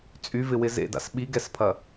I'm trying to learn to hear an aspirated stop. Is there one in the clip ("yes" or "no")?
yes